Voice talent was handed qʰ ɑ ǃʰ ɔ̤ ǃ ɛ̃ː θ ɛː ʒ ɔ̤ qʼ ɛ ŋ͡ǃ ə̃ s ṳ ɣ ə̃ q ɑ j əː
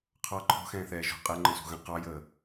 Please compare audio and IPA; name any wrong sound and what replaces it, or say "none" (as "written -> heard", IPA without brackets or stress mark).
ǃ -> x